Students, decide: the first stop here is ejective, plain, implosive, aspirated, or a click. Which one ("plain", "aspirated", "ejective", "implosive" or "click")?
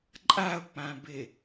click